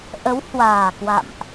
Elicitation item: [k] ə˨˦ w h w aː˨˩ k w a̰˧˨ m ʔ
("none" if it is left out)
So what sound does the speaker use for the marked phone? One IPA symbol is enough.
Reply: ʔ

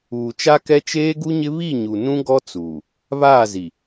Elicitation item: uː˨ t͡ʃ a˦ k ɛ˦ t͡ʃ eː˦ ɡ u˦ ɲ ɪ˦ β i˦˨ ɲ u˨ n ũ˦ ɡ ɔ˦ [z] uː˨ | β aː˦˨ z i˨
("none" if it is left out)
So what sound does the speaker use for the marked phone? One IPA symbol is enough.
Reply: t͡s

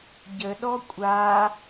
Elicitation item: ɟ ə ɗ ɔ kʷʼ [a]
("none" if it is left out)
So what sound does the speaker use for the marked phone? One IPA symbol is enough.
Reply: a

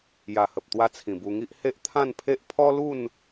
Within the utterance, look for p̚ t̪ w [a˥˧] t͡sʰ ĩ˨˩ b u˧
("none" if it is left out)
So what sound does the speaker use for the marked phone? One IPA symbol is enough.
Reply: a˧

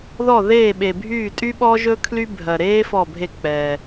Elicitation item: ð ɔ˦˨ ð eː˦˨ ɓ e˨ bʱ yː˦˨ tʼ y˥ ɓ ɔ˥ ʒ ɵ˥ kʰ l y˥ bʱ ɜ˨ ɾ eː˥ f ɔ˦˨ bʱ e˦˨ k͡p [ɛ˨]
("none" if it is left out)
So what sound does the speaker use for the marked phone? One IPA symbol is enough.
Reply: ɛ˨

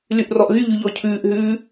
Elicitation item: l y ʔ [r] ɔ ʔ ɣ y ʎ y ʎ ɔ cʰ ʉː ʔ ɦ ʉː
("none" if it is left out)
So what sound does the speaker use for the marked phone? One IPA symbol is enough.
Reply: r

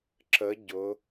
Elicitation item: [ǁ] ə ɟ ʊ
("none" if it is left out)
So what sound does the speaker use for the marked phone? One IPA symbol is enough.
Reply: ǁ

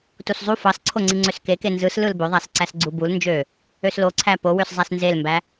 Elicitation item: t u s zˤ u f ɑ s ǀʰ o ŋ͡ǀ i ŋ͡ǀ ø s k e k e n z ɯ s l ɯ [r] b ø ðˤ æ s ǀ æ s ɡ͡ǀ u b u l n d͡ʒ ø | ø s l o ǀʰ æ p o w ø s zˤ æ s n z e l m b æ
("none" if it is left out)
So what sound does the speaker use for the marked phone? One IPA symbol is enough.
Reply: l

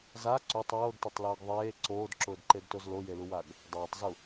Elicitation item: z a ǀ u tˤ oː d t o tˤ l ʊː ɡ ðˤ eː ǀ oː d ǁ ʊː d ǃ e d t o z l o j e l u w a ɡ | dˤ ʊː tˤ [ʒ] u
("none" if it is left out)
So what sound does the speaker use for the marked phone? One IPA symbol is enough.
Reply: z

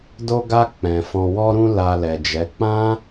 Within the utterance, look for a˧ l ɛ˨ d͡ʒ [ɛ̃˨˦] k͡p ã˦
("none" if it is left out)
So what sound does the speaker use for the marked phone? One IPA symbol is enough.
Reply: ɛ˨˦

